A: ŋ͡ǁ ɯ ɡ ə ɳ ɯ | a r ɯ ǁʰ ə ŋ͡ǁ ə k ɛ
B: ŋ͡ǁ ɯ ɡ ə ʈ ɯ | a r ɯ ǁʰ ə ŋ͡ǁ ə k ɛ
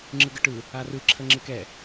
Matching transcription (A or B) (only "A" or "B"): B